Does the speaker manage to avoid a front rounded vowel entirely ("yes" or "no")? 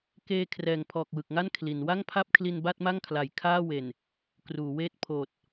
yes